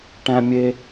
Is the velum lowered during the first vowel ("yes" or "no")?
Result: yes